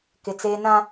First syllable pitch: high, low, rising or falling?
low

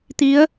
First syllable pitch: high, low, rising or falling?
rising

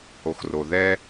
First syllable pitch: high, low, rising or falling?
low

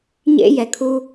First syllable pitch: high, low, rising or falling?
high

